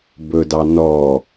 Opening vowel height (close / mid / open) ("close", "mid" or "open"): mid